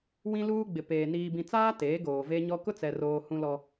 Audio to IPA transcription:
wĩ˦luː˦ɡ͡bɪ˨peː˨ niː˨bĩ˨t͡saː˦ teː˨˦ɡoː˨ve˦ɲɔ˦ kʊ˦t͡sɛ˨roː˨ hũ˦lɔ˦

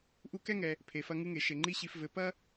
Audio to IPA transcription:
ʔu˦kɛ˥ŋɛ˨ | pʰe˩fɐ˦ŋɨ˦ŋe˩ ʃe˩ŋ͡ǃi˦ɕi˨f vɘ˨ pɐ˥

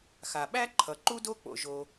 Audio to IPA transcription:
xa˩ɓæ˥ ǃʰʌ˩ǃu˥do˥ k͡po̰˩ʒo˩

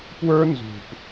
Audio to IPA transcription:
pwə˞˦ nzṳ˨p

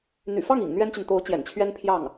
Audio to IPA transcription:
n̪y̰˨˩fɑ˥˩ŋ ḭ˨˩ŋ n̪ɥɛ˥nt͡ɕy˨n t̪o˧˥ʊ̯ t͡ɕjɛ̰˨˩nt͡ɕʰɥɛ˥npʰjɑ˥˩ŋ

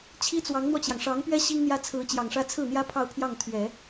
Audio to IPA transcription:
t͡ɕʰi˥t͡swɑ˧˥ŋn̪wɔ˧t͡ɕjɑ˩ŋ ʂɑ˧˥ŋpɥɛ˥ ɕi˥ŋn̪jä˥ t͡sʰɹ̩˧˥t͡ɕjɑ˨˩ŋʂä˥ t͡sʰɹ̩˥˩n̪jä˥ pʰɑ˥˧ʊ̯pʰjɑ˥˩ŋt̪ʰɥɛ˨˩˦

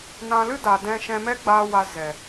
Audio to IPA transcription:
nã˧lɨ˦da˨ dɛ̃˧ʃɛ̃˧mɛ˦ɡ͡baː˧ wa˧zɛ˨

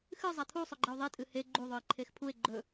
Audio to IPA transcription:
xɨzˤa t̪ʰusˤɵɡ͡ǃeo̯ ðˤitʼɨ he ɡ͡ǃuðˤɵe̯ǃʰex pʰue̯ ɡ͡ǃɵ

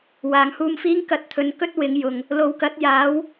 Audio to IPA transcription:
waː˨˩ŋhuː˧mfiː˥ŋ kɐ˧t̚t̪ʰɵ˨˧nkɵ˥t̚ wɪ˨˧ŋjʊ˨ŋ | lo˨wkɐ˨˥t̚ jaː˨˥w

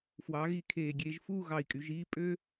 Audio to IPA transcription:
fwɑ˩˧ɣi˧˩ kʰeː˧˩ɡʲeː˧ʒfuː˥˧ ɣɑ˧˩i̯kʼy˩˧ʒiː˥˧ pʼø˥

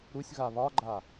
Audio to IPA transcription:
ɾusʲɣa βɒɡ͡ǃa

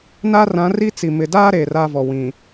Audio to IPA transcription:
na˦rã˨˦ri˦ t͡si˨ mɪ˨daː˦ ɾeː˨raː˦vɔ˨ wĩ˨

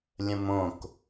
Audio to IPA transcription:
lʲə̃mõk

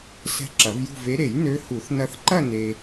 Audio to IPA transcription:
sɛ̤˧ ǁɐ˨˩˦vjṳ˥˧ve˧˥ ɾe˨˩˦j nø˧˥hu˨˩˦θ nɐ˧θǃɐ˥˧ ne˧

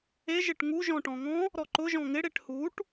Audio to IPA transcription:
e ʒɪʈŋu ʒɔ̃ʈɔ̃ŋɔ̃ | ɾɔǃʊ ʒɔ̃ŋɪ ɽeʈhuʈ

